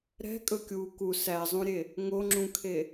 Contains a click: yes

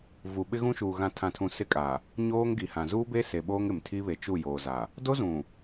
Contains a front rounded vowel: no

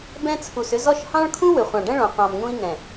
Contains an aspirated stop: yes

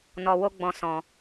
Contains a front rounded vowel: no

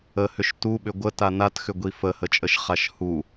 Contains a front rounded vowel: yes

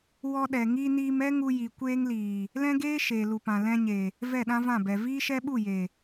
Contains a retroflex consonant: no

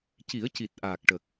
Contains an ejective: no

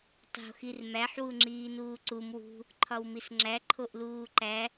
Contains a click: yes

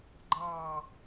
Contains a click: yes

